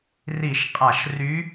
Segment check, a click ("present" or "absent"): absent